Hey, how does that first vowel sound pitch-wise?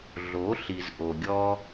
rising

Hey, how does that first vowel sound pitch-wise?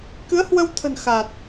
rising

